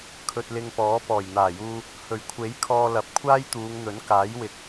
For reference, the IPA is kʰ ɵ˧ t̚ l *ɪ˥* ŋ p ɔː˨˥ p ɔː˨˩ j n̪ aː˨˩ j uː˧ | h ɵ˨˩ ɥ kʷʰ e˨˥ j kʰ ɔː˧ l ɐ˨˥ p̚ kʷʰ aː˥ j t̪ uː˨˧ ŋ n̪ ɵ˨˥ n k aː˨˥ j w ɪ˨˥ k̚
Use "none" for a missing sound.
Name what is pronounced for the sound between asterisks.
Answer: ɪ˧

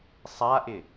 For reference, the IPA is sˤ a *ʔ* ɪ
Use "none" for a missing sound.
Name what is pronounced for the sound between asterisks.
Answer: ʔ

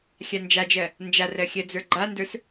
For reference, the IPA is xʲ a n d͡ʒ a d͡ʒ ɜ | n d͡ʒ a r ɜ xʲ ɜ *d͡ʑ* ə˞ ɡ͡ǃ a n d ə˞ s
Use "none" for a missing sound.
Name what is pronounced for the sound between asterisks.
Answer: d͡z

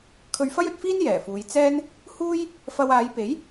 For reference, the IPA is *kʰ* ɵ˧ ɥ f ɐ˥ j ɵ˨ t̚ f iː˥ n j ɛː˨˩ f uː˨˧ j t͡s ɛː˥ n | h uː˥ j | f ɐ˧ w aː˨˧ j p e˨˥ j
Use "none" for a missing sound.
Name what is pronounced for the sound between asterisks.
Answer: kʰ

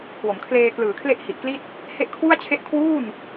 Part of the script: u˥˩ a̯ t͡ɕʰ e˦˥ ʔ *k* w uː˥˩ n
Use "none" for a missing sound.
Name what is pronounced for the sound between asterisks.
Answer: kʰ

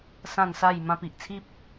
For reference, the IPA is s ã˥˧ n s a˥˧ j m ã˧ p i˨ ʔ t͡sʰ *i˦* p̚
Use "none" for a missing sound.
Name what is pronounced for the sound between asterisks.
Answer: i˦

